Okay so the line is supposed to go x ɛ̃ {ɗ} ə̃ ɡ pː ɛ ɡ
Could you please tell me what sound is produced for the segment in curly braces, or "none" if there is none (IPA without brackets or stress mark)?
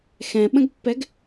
ɓ